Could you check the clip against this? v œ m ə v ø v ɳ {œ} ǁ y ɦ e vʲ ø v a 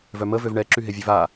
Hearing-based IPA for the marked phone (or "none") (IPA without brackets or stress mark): ɛ